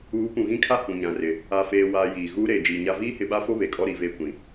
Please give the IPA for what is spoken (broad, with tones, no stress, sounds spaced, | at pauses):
uː˨˦ p ũ˨ ɣ ĩ˦ kʰ a˦ h ũ˨ ɲ ã˨ r ɪ˨ | a˨ f eː˨ w aː˨ j iː˨ ɣ uː˦ ɾ eː˨ d͡ʒ iː˨ ɲ a˦ v iː˦ h ɪ˨ ɓ a˦ f o˦ β e˨ kʼ ɔ˦ ɾ i˨ v eː˦˨ kʷ ĩ˨